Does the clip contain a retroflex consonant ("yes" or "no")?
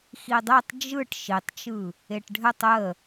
yes